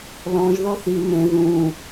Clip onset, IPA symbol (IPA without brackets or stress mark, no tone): l